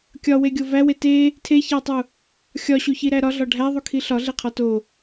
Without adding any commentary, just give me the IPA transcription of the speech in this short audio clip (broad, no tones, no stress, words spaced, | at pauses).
kʲɒweɡʲo væwe te | tʰeçætˤu | xʲɒɕuçiɾæ ɾɒɮɒ ɖʱæðˤukʰi ɬɒɮeqʰɒ to